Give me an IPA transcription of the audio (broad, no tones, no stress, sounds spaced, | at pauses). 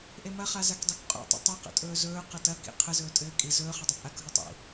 ʔ e m ɐ χ a z a k dˤ e k qʼ ṵ tˤ ə̰ tˤ ɐ q ə̰ tʼ ɵː z ɵː q ɐ t ɐ k ḭ qʰ ɘ z ɵː tʼ ɘː kʼ i z ɵː χ ɐ dˤ ə pʼ a k ɦ u tˤ ḭ